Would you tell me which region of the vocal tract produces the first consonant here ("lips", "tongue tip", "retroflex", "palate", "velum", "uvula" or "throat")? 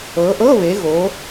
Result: throat